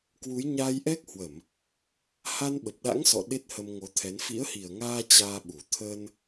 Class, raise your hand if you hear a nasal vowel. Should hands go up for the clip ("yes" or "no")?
no